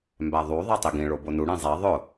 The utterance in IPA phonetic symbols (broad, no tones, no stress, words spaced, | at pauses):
mbæðˤu ðˤætˤiɡĩ ɭobonu ɽẽzˤæ ðˤʊ